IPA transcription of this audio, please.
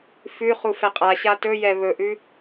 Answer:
fʉ χufɛqʼaɕa tɵjɛ βɵʔʉ

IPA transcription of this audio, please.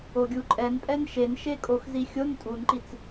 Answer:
oɡʲuǃʼɛnpʼɛn ʃenʃekʼox zixʲon tʼunǃit͡s

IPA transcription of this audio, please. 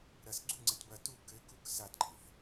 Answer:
ɾɐs ɡ͡ǀuŋ͡ǀɛt bɐ tu kɘkuk sadɡ͡ǃeθ

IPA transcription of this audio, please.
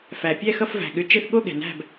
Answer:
fæ˩pʲɛ˥˨xʌ˥˨f væ̤˩ ɠʏ˧˩ t͡ʃe˥˨θ ɠo˥˨ɠɛ̤˩næ̤˥˨b

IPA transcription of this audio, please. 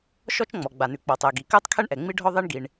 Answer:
ʃɔ˥t͡ʃŋ͡mɔ˩ ɡ͡ba˩nʉ˩k͡pɔ˩tˤɜ˩ ɡi˩kɜ˥tˤkʰɛ˥ɳʔɛ˩ ŋ͡mi˥ɖʱɔ˥ ðˤi˥ɳɡi˩ɳ

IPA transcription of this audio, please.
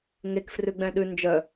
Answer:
ŋek frʉɡ͡bɛ̃ɗʉ nd͡ʒœ

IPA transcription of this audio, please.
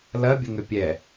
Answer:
lɐbʲəŋʏ pʲɛ

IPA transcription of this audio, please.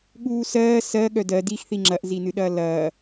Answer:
ɠuːsɜː sɜ ɠœdɜ dixθi ŋ͡ǁɐʔzinɨɗɐː lɐː

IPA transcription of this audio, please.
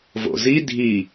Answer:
vo̰zi dʱi

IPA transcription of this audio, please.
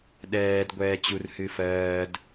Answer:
ɗɛːd ɡʷɛːt͡ɕur hɨfɜːd

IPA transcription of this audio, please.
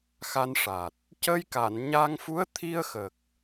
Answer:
xa˧nʂa˨˩t̚ | cə˧jka˨˩˨n ɲa˧ŋfu˧˥ə̯ t̪ʰi˧ə̯xə˨˩k̚

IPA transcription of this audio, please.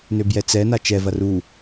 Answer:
nøbjɛt͡sɛ nat͡ʃɛ vɐru

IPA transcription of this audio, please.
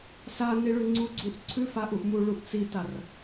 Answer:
sa niɭʉŋ͡ǀu ɡ͡ǀuʔǀʰʉ faʔuʔmu ɭuʔt͡sitar

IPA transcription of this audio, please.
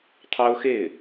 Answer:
t̪ʰɑ˥ʊ̯xe˥˩ɪ̯

